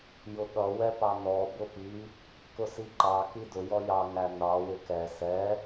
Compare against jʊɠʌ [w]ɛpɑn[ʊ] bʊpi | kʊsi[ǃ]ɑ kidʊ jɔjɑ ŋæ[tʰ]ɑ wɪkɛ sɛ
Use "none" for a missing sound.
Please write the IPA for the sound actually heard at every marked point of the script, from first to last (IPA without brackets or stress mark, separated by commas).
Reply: w, ɔ, ǃ, n